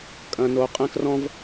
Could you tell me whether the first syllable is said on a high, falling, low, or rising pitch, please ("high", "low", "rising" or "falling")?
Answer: high